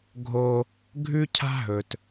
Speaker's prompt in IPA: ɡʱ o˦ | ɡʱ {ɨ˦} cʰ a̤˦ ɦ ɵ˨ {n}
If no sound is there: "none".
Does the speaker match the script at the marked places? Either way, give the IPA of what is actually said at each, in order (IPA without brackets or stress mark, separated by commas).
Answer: ʉ˦, t